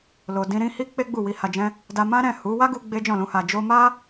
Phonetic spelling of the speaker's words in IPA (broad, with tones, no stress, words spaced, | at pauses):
lo˨dĩ˧ ɾĩ˧ hi˦k͡pe˦ ɡ͡bu˦˨ wi˨˦ha˧d͡ʒɛ̃˦ | da˧mã˦ɾɛ̃˦˨ hu˨˦ wa˦ɡu˧ ɡ͡be˦d͡ʒɔ̃˦˨lũ˧ ha˨d͡ʒo˧ma˦